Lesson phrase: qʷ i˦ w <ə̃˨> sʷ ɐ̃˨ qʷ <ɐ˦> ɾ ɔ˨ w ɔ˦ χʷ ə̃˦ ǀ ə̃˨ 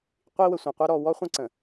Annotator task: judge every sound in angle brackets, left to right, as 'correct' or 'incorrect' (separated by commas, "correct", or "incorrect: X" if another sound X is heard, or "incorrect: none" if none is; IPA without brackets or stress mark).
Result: incorrect: ə˨, correct